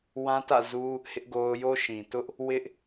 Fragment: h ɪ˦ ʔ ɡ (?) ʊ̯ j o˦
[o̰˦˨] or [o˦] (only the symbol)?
o˦